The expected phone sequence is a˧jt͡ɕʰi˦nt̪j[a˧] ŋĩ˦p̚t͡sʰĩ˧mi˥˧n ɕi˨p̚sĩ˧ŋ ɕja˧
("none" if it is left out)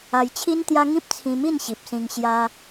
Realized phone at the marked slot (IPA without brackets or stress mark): a˦